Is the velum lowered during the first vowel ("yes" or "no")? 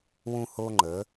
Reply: yes